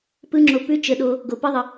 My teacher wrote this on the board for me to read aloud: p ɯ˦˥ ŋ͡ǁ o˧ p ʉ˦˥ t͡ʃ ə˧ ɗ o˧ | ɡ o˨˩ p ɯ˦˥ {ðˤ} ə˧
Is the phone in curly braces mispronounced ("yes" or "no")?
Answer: no